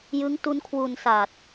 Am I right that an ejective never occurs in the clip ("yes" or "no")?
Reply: yes